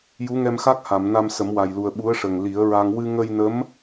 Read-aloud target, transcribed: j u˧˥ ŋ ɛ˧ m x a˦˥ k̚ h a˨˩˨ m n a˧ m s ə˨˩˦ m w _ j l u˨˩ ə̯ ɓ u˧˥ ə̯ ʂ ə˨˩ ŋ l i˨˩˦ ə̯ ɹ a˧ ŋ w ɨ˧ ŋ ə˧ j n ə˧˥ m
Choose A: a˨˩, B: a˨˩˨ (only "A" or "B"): A